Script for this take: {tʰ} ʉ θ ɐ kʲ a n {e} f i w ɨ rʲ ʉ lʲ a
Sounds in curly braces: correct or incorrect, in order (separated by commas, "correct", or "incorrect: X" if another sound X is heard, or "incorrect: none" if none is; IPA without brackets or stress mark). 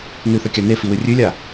incorrect: n, correct